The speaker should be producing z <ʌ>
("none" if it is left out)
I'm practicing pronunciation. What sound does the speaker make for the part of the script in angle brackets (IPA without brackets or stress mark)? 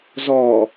ɔ